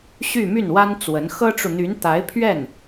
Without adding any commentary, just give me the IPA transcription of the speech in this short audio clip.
ɕ y˥˧ m y˥˩ n w a˥ n t͡s w ə˧˥ n x ɤ˥ ʈ͡ʂ u˨ n̪ y˧˥ n t̪ a˧˥ ɪ̯ pʰ ɥ ɛ˥˩ n

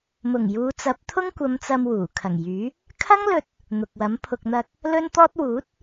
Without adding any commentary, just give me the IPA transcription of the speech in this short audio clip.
m ʊ˨˩ ŋ j uː˨˧ t͡s ɐ˨˥ p̚ t̪ʰ ʊ˥ ŋ kʷ ɐ˨˧ m t͡s ɐ˧ m w uː˨˩ kʰ ɐ˨˩ ŋ j yː˨˥ | kʰ ɐ˥ ŋ l ɵ˧ t̚ | n̪ ʊ˨ k̚ w ɐ˨˥ m pʰ ʊ˧ k̚ n̪ ɐ˧ k̚ | l ɵ˥ n t̪ ɔː˥ t̚ w uː˨˥ t̚

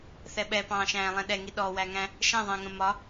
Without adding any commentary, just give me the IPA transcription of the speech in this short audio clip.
θ ɛ ɓ ɛ p ɑ̃ː ʃ æ̃ː lˠ ɛ̃ ɗ ɛ ŋ i ɗ ɔ w æ ŋ æ̃ | ʃ ɛ̃ ðˤ æ̃ ŋ ə̃ m ɒ

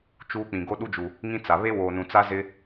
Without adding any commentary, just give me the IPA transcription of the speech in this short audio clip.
t͡ʃ uː˦ k͡p ĩ˨ ɡ o˦ ɗ u˦ d͡ʒ u˨ | ŋ ĩ˦ t͡s a˨ β e˦ w o˨ n ũ˨ t͡s a˦ z ɪ˦

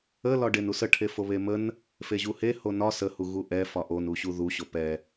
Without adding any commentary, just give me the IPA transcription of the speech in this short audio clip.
ə l ɒ ɖ e n u s ə ʈʰ e f o β e m ə n | f e ʑ u h e h o n ɒ s ə h u ɣ u ʔ ɛ f ɒ ʔ o n u ɕ u ð u ɕ o p ɛ

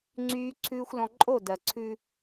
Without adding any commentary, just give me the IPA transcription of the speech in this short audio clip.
ŋ͡ǀ yː˨ ǀʰ ʉː˨ xʷ l ɔ̃˨ ǃʼ o˦˨ d ɜ˨ ǀʰ ʉ˦

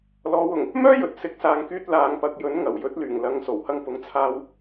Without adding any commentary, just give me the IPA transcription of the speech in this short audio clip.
l ɔː˨˧ w ʊ˨˩ ŋ | m œː˥ j ɵ˨˥ t̚ s ɪ˨ k̚ s aː˨ ŋ k yː˧ t̚ l aː˨ ŋ p ɐ˨ k̚ j ɵ˨˥ n ŋ ɐ˨˩ w j ɵ˨˥ t̚ l yː˨˩ ŋ l ɐ˨˧ ŋ s o˨˩ w h ɐ˧ ŋ p ʊ˨˧ ŋ t͡sʰ aː˧ w

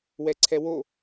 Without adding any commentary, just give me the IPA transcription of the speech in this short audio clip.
w ɛ ǀʰ ɛ w o

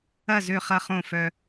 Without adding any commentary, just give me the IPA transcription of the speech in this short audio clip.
ɐ˥˩ z ø˥˩ χ ɐ˥˩ χ õ˥˩ f œ˧

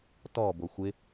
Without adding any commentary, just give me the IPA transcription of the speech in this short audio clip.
t ɔ b o xʷ ɪ

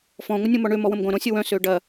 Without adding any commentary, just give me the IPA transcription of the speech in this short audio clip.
f ɔ̃ ŋʷ ə nʲ õ m ɔ ɳ ø m ɔ w ə̃ m ɡʷ ɐ̃ ɾ õ sʲ ə w œ̃ s ø ɖ ɐ

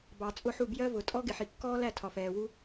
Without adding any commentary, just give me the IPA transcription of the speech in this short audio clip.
b ɑ˨ t͡sʼ ʊ˦˨ ħ u˦˨ b j ɜ˦ v ʊ˨ tʼ ɔ˦ ɡ ɪ˨ ħ i˨ kː ɔː˦ l æ˦˨ tʰ ɒ˨ f ɛː˨ w u˦

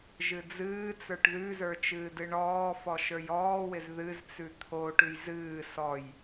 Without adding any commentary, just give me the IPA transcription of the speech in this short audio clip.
ʒ ɨ d͡z ɨː t͡s ə˞ ʈ ð ʉ z ə˞ t͡ʃ ɨː d ɨ ɳ ɔː f ɔ ʃ ə˞ j ɔː w ɪ z ð ɨ z t͡s ʉ t̪ʰ o ʈ ʉ j z ɨː s ɔ j

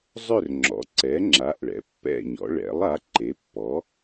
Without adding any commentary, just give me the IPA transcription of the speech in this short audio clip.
zˤ ʏ˥˨ r ŋ͡ǁ ɔ̰˩˥ ǀ ɛ˩˥ ŋ͡ǁ a˩˥ ʔ ɭ ɛ̰˩˥ pː ɛ̰˥˨ ɲ ɔ̰˩˥ ɭ ɛ̰˩˥ lˠ a˩˥ ǃ e˩˥ pː ɔ˩˥

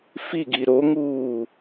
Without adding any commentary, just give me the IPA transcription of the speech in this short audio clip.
f i ɡ i ɾ o ŋ uː

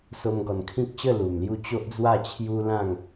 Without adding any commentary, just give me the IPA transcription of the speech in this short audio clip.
s o˦ m ɡ ɔ˧ n kʰ ĩ˦ k̚ ɕ ə˥˧ l u˨˩ m l j u˧ t͡ɕ o˦ ʔ d͡z w a˥˧ t͡ɕʰ j u˦ l ã˥˧ ŋ

